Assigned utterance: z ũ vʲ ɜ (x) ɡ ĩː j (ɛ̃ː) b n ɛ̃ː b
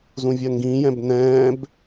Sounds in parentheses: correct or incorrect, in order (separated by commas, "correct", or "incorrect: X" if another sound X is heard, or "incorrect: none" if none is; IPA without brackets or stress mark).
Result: incorrect: ŋ, incorrect: ɛ̃